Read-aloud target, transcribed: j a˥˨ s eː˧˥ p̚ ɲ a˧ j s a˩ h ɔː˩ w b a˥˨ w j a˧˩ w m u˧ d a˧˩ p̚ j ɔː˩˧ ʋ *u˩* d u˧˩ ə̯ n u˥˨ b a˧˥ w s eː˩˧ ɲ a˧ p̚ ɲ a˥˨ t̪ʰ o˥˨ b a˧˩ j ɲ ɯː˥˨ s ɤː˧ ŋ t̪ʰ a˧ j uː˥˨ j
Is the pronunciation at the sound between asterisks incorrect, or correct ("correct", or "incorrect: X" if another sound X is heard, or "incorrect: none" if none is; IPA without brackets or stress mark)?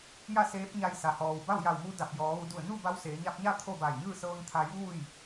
incorrect: u˩˧